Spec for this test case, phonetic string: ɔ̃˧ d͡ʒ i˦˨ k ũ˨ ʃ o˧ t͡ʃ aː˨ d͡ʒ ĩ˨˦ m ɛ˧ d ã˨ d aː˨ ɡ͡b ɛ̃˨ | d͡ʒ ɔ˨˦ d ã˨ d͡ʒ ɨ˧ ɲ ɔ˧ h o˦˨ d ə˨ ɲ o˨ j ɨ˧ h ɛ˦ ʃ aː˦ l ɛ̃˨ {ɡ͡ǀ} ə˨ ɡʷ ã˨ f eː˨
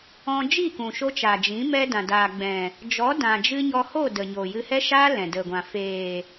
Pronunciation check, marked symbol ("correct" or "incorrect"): incorrect